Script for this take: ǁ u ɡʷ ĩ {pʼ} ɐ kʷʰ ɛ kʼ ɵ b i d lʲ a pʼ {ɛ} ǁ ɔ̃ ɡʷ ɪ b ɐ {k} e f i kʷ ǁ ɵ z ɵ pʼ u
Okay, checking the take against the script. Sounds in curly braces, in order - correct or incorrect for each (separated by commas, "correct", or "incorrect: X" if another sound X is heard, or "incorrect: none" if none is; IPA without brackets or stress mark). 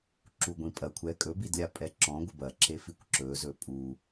correct, correct, incorrect: ǁ